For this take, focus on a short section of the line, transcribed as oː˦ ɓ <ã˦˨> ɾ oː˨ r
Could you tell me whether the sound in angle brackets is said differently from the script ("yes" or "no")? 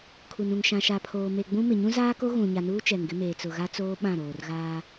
no